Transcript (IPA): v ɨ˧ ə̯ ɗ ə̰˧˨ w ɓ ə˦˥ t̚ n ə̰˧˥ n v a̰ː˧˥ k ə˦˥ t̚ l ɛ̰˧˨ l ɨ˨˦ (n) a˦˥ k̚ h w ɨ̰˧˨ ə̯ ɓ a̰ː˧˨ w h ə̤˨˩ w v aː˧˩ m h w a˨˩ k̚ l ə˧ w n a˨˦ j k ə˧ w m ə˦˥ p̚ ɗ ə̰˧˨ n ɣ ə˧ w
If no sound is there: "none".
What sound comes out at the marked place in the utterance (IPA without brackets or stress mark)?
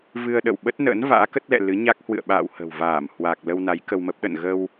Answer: ɲ